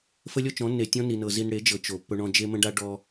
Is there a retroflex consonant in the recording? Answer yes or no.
yes